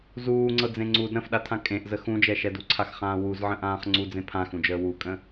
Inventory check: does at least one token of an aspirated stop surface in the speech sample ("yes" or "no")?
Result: yes